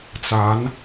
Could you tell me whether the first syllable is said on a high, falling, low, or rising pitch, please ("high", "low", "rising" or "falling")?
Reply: rising